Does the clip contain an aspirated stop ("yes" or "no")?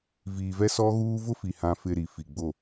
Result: no